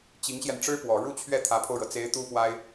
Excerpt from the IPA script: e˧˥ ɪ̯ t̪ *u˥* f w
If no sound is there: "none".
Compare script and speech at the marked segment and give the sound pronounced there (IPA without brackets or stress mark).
u˥